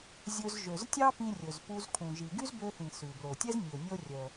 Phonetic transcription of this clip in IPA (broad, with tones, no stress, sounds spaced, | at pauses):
zʲ ɵ˧ z ʒ ø˩ z tʲ ɑ˥ p ĩ˧ rʲ ɵ˩ z p u˧ z kʰ ũ˩ ʒ i˩ ɡ y˥ z b ø˧ θ ĩ˩ s ʉ˩ b l o˩ tʲ ɛ˥ z nʲ ɵ˩ nʲ o˧ rʲ œ˩